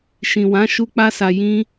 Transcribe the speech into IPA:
ʃ ĩ˨ w ã˨˦ ʃ u˦ k͡p a˦ s a˧ j ĩ˦

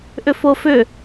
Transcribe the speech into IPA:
ʔ ʏ f o f ʏ

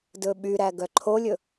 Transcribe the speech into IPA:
d ɵ ɓ y ɾ æ ɡ œ ǃʰ o lʲ ɵ

